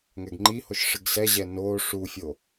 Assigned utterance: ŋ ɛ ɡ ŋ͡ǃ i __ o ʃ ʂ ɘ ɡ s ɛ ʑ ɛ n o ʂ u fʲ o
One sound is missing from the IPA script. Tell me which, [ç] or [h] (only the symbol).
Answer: h